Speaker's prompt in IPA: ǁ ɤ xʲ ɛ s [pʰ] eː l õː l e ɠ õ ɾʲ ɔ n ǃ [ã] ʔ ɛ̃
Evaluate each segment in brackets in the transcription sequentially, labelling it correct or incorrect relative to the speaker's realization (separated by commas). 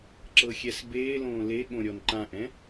incorrect, correct